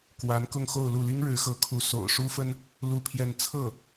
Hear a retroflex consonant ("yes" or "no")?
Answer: yes